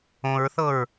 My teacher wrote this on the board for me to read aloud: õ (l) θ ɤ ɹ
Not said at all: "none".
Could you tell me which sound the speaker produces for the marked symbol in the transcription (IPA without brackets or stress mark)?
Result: ɹ